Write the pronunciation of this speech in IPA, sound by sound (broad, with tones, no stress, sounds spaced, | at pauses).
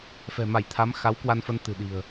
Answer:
f ɛ̤˨˩ m a˧˩ j t̪ʰ a˨˦ m x a˨˦ w k w a˧ n f ə˧ n t̪ ɨ̤˨˩ ɗ i̤˨˩ ə̯